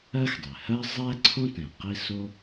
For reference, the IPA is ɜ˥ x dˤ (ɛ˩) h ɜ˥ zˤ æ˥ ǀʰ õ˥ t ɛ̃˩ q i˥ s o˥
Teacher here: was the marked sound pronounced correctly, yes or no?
yes